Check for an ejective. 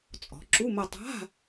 present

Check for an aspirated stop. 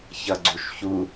absent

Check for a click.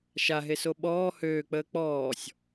absent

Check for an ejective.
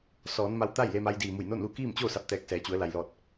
absent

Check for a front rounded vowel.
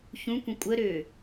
present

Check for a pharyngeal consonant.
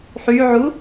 present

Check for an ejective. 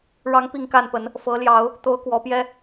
absent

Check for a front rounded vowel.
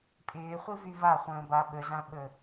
present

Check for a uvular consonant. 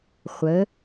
present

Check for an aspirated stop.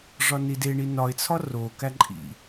present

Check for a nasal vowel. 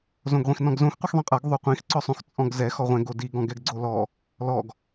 present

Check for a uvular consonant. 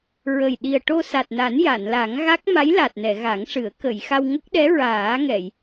absent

